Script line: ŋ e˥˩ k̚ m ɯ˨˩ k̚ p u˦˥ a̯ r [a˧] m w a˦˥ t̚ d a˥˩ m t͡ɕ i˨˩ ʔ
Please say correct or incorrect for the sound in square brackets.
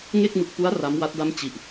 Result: incorrect